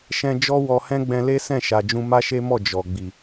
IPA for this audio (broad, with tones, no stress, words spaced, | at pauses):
ʃɛ̃˧ d͡ʒɔ˦wɔ˧hɛ̃˦ ɡ͡bɛ̃˧le˦ sɛ̃˦˨ʃa˨d͡ʒũ˧ ma˦ʃe˦mɔ˦˨ d͡ʒɔ˨ ɡ͡bi˨